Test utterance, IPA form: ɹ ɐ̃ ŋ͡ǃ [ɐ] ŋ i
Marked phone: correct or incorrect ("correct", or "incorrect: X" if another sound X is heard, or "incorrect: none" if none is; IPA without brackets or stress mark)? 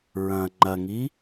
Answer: correct